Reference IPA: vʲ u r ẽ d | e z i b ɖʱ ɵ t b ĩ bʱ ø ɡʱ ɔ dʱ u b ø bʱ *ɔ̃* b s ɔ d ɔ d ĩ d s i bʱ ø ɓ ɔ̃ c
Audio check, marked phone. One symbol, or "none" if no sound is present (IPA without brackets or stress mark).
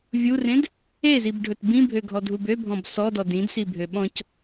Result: ɔ̃